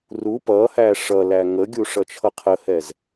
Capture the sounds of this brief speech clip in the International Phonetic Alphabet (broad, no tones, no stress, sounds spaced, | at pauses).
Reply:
r u p ʌ h æ ʂ ʌ l æ ŋ ə ɡʲ u ʂ ʌ t͡ʃʰ ʌ qʰ ə h ɛ z